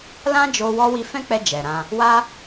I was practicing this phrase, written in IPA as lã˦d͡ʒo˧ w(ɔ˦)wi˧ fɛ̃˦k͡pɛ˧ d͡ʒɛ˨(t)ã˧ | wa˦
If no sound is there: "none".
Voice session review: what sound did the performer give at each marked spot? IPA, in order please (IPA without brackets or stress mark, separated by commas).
ɔ˧, ɾ